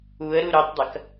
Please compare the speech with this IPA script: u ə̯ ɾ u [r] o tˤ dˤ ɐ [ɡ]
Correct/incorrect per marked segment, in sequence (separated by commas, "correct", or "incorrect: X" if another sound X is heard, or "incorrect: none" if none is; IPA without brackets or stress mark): incorrect: ɾ, incorrect: k